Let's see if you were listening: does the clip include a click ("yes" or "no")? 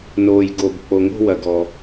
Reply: no